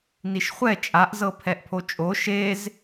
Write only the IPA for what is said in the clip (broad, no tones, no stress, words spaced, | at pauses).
niʃχʷɛ t͡ʃʼaʔzɤ pʰɛʔpʰot͡ʃʼo ʃez